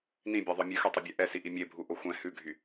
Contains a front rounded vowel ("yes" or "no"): yes